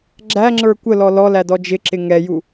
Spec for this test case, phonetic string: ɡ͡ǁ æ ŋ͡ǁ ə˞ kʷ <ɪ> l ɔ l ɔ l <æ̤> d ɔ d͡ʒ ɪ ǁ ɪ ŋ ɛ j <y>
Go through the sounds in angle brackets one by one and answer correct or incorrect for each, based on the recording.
incorrect, incorrect, incorrect

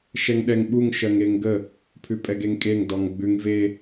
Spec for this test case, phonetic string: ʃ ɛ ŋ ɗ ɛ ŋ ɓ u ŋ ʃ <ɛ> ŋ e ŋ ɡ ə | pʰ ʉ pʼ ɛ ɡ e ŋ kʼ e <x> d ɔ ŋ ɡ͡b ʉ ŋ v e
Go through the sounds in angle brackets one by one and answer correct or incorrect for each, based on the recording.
incorrect, incorrect

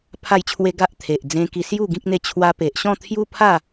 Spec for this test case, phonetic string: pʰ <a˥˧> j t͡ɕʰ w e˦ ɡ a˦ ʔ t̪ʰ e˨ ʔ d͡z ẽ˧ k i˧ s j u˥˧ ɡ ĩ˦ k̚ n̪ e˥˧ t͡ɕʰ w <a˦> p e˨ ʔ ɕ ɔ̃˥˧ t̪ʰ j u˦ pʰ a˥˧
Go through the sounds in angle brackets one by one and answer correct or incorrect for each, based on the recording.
correct, incorrect

